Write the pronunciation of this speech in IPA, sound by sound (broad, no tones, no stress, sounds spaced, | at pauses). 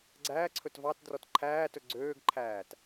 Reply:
ɡ͡ǀ æː ǀʰ ɵ t v ɑ t d r ɔ t ǃʰ æː t ɵ ɡ͡ǀ øː ɡ ǃʰ æː t